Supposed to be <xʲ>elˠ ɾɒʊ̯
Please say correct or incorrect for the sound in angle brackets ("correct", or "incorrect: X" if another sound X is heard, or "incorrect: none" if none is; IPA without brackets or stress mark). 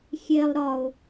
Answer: correct